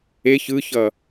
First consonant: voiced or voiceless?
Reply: voiceless